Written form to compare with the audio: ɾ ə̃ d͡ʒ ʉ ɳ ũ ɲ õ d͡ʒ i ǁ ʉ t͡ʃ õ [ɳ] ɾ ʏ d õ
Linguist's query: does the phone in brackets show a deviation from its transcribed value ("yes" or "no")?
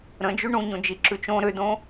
yes